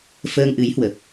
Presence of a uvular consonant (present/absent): absent